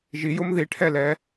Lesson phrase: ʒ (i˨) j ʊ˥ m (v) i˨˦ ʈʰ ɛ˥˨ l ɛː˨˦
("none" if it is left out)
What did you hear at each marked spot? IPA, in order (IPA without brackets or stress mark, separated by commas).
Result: i˨˦, ð